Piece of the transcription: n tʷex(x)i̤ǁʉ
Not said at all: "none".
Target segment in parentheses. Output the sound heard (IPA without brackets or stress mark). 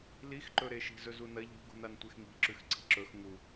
ŋ